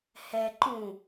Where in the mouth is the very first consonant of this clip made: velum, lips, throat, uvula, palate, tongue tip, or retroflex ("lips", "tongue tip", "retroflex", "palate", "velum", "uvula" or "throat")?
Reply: throat